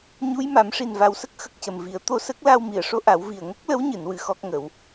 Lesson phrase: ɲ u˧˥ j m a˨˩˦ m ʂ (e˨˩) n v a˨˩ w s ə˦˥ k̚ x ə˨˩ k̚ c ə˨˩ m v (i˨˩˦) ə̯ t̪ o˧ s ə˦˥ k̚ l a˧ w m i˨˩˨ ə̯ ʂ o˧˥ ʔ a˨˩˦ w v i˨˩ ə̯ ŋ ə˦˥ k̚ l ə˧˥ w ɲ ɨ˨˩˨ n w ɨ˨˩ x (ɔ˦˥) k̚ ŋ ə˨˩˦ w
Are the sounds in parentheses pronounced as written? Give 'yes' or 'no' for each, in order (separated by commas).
no, yes, yes